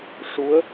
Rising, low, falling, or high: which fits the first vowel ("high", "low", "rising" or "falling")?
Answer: rising